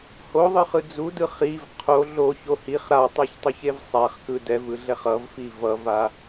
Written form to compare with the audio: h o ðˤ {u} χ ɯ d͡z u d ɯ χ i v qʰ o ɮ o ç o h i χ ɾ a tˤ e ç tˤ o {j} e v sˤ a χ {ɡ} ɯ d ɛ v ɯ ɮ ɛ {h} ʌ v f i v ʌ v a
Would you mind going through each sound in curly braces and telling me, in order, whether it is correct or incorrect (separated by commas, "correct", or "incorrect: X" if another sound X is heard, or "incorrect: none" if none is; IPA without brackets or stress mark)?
incorrect: ɯ, incorrect: ç, incorrect: k, incorrect: χ